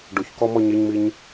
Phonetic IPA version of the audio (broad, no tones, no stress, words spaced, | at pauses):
ɖʊçkɔ mɔɲeɲmiɲ